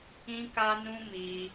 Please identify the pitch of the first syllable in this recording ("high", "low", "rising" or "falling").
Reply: high